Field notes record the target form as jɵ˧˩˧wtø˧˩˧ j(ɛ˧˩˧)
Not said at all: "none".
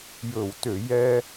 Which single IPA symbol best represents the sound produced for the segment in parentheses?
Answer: ɛ˥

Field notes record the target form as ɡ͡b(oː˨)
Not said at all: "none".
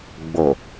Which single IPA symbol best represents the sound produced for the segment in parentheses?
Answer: o˨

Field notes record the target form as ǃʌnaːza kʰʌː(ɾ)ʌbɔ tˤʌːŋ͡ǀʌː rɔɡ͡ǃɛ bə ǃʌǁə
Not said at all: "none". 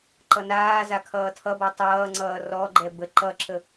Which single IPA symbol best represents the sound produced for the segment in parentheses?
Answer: tʰ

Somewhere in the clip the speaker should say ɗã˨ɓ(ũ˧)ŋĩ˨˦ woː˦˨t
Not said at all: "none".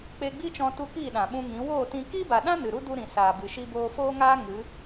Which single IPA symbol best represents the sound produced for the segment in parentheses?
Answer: ũ˧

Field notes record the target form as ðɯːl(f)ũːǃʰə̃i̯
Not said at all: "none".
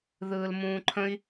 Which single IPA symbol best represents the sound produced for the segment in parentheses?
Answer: m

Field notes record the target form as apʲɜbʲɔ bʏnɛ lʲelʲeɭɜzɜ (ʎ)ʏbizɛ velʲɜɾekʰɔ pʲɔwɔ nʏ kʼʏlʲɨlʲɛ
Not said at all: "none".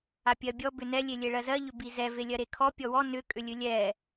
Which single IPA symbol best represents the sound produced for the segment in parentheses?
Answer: ʎ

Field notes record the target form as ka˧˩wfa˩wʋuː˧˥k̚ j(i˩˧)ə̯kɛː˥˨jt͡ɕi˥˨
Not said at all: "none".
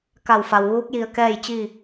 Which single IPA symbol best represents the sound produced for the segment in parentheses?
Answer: i˧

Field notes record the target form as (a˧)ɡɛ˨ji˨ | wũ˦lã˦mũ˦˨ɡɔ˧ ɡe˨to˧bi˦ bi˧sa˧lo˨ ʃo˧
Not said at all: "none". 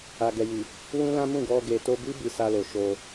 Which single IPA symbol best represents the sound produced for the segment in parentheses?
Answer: a˨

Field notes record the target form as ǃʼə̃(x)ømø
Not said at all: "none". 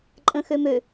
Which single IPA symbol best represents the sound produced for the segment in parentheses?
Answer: x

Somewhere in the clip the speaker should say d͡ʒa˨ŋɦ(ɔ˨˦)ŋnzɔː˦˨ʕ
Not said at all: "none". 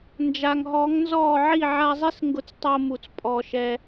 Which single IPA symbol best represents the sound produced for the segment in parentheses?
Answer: ɔ˨˦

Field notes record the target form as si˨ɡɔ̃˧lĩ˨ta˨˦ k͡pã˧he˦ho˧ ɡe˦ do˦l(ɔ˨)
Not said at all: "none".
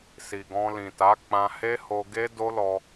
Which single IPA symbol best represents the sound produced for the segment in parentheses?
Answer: ɔ˧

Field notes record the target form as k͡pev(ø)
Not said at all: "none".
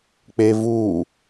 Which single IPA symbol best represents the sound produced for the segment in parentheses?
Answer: u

